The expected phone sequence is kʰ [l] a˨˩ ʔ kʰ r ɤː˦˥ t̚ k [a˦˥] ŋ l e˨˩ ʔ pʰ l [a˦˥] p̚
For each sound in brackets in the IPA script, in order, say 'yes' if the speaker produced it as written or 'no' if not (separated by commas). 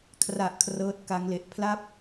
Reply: no, yes, no